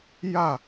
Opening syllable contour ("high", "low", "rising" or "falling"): falling